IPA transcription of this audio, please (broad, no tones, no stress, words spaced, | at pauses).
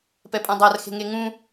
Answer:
pɛpʼãdˤar xe̤ŋeŋũ